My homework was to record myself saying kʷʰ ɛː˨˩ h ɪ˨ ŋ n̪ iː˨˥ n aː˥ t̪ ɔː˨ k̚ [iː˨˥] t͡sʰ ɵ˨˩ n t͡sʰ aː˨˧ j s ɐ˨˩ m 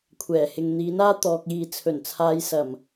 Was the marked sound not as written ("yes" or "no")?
yes